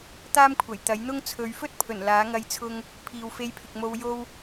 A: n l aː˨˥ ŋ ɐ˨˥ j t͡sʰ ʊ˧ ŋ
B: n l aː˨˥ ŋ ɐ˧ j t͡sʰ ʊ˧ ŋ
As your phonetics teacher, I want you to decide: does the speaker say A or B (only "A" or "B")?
B